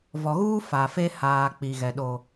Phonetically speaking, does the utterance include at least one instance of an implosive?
yes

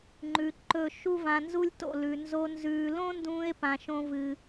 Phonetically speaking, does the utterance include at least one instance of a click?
yes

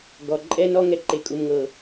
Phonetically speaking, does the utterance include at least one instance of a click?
yes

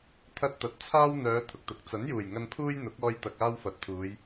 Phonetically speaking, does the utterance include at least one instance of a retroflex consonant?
no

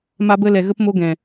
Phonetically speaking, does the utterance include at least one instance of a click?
no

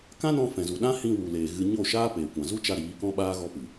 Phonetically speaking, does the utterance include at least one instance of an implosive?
yes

